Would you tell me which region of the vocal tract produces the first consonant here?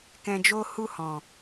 velum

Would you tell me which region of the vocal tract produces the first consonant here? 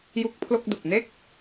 palate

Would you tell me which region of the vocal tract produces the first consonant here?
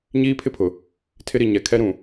palate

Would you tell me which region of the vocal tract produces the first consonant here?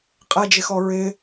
uvula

